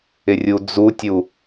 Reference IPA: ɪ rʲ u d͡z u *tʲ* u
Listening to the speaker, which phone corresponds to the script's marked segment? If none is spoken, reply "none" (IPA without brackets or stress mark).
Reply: tʲ